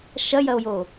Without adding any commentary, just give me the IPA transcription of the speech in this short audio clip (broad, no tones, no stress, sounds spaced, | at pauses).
ʃ ɐ j ɐ o̯ j o